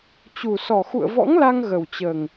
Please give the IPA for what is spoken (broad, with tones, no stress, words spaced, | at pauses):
t͡ɕu˨˩sɔ˨˩ xṵ˧˨ə̯vɔ̰˧˥ŋla˧ŋ ɣə˨˩wt͡ɕəː˨˩ŋ